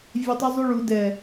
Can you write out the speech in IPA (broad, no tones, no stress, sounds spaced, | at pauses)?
vʲ ɛ tˤ ʉ zˤ u ɭ u d ɛ